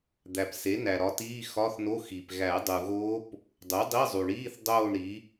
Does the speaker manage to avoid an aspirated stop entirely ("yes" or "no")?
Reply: yes